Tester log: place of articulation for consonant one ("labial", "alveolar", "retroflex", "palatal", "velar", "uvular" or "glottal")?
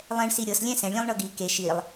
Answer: alveolar